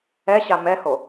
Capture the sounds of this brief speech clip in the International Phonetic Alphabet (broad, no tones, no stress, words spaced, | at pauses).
ɛɕa mɛho